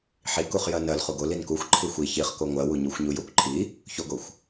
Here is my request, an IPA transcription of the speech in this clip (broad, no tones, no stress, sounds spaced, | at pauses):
ħ i k u χ j ɜ n ɜ l χ u ɡ o l i n k u xʷ ǃʰ i xʷ i ç i χ k o ŋʷ ɜ w u ɲ u xʷ ɲ u j o kʷ ǃʰ i | ç o ɡ o xʷ